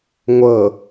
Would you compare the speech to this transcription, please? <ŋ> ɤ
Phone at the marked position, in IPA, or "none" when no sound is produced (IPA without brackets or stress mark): ŋʷ